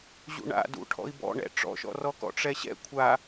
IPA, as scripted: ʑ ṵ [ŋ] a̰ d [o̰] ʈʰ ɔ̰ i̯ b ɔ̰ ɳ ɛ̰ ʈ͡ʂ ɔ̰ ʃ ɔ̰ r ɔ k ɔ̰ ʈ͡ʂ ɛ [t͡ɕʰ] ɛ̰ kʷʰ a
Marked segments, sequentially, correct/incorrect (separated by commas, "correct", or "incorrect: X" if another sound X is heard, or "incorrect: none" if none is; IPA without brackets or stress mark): incorrect: ɳ, incorrect: ṵ, incorrect: ɕ